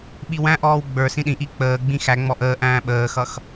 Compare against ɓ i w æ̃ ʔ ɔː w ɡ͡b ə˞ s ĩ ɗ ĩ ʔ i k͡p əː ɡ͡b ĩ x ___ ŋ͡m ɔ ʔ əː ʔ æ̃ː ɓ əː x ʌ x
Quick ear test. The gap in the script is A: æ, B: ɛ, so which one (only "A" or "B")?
A